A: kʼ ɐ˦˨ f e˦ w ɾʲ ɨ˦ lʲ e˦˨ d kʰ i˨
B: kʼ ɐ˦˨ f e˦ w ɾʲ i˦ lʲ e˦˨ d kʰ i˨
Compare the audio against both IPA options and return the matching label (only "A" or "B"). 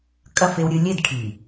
A